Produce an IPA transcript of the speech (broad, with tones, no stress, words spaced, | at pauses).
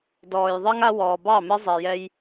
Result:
dɔː˨j ðˤɤ˦ŋ a˦wɔː˨ bɑ˦˨mɘ˦ zˤɛ˨jɛ˦j